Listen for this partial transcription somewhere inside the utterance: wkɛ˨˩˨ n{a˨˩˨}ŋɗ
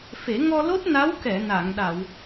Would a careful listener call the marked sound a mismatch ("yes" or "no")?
no